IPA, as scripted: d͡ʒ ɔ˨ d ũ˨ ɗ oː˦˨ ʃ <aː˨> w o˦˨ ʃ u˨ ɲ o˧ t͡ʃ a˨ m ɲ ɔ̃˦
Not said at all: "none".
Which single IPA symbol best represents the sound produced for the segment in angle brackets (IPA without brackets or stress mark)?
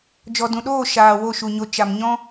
aː˨